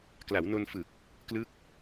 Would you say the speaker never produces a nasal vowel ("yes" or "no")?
yes